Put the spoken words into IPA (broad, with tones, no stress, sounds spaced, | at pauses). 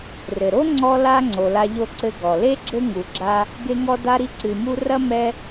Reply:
r ɘ˩ ɾ o˥ ŋ͡ǀ ɔ˦ l a˦ ŋ͡ǀ o˩ l a˨ ʎ o˦ ǀ ɘ˦ ɡ ɔ˩ l e˥ ɡ͡ǁ ɘ˥ ŋ u˩ ɡ͡ǁ a˦ | ɡ e˦ ŋ ɔ˦ d a˦ ɾ i˦ ǀ ɨ˨ m u˦ r ɐ˥ m ɛ˦